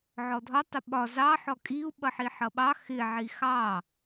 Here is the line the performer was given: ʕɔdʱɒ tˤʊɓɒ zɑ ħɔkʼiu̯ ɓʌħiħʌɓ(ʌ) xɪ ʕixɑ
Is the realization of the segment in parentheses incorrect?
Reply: yes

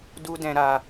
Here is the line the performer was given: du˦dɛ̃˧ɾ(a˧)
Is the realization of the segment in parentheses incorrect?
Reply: no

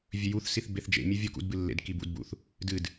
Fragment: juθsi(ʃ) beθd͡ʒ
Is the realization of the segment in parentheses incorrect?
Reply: yes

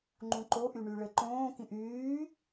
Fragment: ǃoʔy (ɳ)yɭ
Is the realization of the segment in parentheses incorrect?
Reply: no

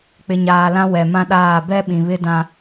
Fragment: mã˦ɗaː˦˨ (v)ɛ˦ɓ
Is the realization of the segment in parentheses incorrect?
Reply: yes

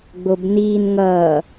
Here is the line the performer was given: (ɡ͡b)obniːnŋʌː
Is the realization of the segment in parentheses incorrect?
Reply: no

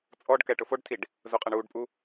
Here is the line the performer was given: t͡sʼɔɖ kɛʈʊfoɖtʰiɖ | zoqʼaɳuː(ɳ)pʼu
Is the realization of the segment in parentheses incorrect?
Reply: yes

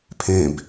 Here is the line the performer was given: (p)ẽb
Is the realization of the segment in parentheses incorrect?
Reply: yes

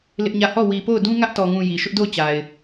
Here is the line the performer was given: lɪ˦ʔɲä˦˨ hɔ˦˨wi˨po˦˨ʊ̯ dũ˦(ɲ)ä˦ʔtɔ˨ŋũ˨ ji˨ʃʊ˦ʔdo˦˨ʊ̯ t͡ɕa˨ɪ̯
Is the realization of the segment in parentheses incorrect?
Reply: yes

